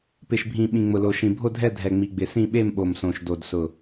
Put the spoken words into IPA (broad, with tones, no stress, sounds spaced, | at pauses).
p ɪ˨˩ ʃ bʱ ĩ˨˩ ɓ ĩ˨˩ ŋ͡m ʊ˨˩ l o˨˩ ʃ ĩ˨˩ bʱ o˥˨ dʱ ɛ˥˨ dʱ ɛ˨˩ ŋ͡m i˨˩ ɡ͡b ɪ˨˩ s ĩ˥˨ ɓ e˥˨ m ɓ o˨˩ m s õ˨˩ ʃ d o˨˩ d s ʊ˨˩